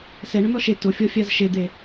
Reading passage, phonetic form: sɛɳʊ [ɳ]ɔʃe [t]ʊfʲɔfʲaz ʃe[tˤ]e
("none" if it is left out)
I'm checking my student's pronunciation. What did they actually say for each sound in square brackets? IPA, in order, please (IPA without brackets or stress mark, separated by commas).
n, t, d̪